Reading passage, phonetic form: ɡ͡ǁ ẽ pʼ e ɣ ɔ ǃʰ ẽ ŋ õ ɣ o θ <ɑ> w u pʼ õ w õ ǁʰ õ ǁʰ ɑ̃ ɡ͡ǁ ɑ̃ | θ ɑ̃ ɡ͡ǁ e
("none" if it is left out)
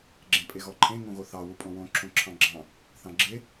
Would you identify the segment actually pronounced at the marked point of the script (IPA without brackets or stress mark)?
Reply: ɑ